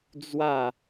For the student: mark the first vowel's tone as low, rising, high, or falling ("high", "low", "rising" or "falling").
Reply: falling